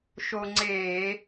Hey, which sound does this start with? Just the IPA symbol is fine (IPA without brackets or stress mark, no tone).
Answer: ʃ